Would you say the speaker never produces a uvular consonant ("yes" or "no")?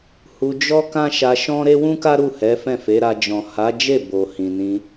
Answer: yes